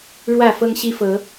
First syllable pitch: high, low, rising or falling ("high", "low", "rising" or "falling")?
falling